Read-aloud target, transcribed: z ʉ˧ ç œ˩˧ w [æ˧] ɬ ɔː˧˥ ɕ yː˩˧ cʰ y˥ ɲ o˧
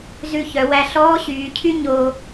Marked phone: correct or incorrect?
correct